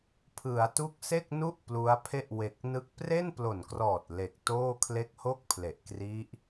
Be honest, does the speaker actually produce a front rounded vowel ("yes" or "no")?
no